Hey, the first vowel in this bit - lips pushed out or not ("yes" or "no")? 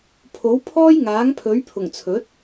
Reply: yes